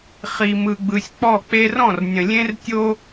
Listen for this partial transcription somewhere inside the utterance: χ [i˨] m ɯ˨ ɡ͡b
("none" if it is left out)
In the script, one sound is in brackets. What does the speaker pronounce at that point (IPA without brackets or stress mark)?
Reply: i˨